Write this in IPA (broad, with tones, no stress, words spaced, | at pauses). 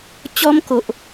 t͡ɕɔ˦mko˨ʔ